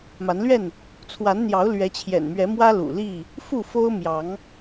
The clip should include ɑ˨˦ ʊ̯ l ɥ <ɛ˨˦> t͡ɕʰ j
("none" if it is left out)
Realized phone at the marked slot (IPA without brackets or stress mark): ɛ˨˦